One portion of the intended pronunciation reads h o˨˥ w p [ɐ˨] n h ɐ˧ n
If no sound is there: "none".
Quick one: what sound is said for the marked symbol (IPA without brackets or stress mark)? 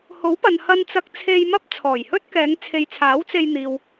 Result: ɐ˨